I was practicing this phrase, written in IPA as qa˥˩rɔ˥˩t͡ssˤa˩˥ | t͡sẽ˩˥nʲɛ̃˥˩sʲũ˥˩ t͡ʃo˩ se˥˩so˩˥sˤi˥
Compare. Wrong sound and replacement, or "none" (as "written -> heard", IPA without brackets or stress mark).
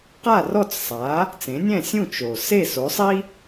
none